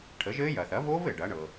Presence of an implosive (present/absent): absent